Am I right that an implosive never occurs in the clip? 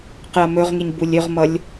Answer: yes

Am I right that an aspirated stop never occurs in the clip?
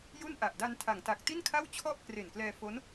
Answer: no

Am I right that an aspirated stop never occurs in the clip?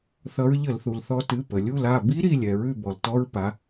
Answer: yes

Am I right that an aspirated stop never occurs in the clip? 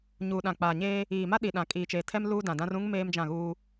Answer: no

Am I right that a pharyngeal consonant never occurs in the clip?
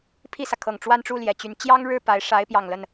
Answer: yes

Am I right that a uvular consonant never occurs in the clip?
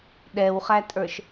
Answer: no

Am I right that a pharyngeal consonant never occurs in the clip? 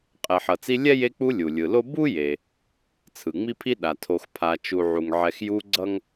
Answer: no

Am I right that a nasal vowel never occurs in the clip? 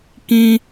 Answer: no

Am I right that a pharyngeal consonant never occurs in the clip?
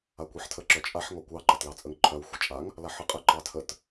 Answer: no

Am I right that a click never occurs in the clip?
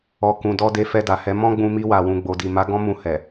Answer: yes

